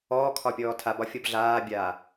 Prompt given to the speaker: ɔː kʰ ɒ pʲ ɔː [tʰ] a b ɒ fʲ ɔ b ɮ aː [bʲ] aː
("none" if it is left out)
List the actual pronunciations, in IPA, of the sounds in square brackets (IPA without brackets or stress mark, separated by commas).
tʰ, bʲ